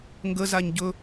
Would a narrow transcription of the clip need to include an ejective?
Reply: no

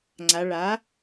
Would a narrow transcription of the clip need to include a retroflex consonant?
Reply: yes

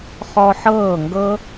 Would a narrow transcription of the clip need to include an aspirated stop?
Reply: no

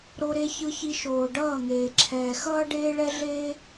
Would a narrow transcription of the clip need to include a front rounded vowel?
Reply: no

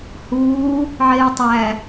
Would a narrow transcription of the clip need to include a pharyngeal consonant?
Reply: yes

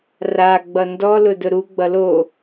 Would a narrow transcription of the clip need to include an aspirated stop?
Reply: no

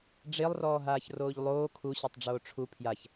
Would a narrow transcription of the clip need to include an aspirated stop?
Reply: yes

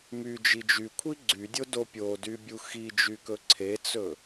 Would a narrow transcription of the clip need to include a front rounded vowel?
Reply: yes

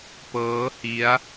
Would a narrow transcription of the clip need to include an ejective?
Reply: no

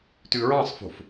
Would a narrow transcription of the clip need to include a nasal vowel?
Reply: yes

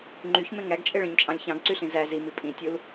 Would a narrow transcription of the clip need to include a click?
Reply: yes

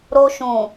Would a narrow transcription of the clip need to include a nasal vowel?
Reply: yes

